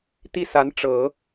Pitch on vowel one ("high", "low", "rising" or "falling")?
falling